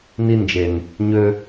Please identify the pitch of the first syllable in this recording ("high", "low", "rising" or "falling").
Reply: high